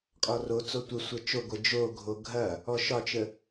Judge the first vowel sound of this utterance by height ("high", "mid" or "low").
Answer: low